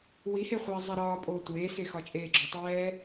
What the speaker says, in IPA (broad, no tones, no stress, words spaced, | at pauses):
wiheχʷɛː zˤiɾɒːpʼoː tʷeːse xɒt͡ʃʼeːɡ͡ǁotˤɛː